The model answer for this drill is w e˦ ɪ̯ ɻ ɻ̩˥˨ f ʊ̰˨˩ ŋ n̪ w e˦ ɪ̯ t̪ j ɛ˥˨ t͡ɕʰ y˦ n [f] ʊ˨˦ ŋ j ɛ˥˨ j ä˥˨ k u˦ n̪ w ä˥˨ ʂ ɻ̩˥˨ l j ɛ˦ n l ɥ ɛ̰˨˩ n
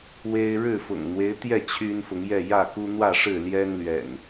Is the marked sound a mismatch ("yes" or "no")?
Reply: no